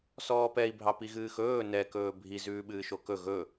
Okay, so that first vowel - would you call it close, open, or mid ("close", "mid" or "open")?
mid